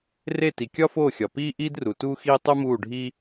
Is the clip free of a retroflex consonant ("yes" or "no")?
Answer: no